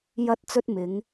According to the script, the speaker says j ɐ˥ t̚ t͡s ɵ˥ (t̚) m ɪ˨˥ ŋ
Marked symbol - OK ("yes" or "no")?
yes